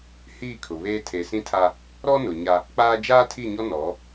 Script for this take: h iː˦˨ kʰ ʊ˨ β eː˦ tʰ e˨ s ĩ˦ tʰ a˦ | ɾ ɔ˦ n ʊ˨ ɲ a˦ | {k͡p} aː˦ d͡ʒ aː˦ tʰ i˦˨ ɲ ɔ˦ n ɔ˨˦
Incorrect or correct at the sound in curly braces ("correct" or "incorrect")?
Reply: correct